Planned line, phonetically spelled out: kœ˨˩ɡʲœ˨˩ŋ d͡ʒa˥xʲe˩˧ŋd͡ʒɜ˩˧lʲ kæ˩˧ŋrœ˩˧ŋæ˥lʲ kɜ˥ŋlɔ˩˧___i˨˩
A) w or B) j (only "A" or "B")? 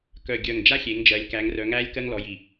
B